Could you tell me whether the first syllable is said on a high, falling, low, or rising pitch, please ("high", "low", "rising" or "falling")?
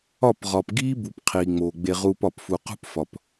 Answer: falling